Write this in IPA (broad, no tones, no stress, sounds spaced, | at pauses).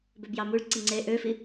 b ø b j ɑ m u ɭ ǀ i ŋ͡ǀ e ʔ ø f i